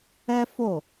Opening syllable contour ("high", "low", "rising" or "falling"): high